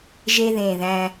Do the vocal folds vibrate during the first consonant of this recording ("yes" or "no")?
yes